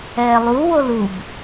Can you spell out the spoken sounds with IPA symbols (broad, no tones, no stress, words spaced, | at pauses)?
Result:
ɛːlˠu wolub